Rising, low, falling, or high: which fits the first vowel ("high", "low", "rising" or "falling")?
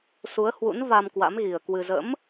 rising